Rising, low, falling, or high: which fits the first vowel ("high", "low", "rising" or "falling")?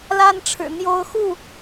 high